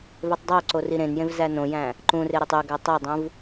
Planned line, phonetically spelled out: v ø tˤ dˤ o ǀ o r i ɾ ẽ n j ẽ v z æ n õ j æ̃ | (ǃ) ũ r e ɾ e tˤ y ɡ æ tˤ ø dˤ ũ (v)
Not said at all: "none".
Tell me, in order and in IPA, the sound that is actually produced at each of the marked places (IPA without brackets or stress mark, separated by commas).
ǃ, v